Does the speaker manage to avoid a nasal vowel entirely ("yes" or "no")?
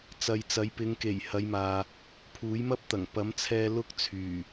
yes